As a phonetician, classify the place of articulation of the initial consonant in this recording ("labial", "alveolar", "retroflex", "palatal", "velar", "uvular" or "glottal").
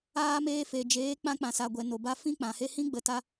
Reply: labial